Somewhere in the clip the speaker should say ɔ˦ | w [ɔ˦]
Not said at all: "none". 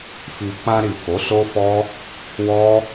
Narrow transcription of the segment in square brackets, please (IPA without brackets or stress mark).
ɔ˦